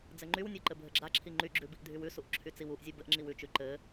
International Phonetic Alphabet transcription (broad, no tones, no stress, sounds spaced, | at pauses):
d͡z ɘ ŋ͡ǃ y w nʲ ɔ ǃ ɘ bʱ ɘ ɡ͡ǁ a ǁʰ i ŋ͡ǃ y ɡ͡ǁ ʉ b i ʔ dʱ y w ʉ s u ʔ ǁʰ y t͡s i w u ʔ zʲ u b ɘ ʔ ŋ͡ǁ i w ʉ t͡ʃ ʉ ǃ ɘ